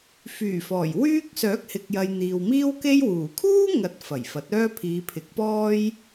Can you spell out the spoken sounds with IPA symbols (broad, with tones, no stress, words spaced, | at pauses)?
fyː˨˩ fɔː˨˩jwyː˥k̚ sœː˨˥k̚hɪ˨k̚jɐ˨j n̪iː˨wmiː˥w ke˥jwuː˨˩ kʰuː˥ŋɐ˨˥t̚ fɐ˨˩jfɐ˨˥t̚œː˥ pʰiː˨˧pʰɪ˨˥k̚pɔː˥j